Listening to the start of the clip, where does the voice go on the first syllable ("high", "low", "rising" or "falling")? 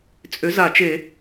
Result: rising